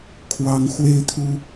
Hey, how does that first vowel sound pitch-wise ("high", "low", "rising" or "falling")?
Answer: high